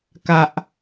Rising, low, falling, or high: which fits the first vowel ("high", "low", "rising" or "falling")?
high